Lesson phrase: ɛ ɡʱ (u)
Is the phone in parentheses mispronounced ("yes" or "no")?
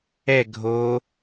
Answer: yes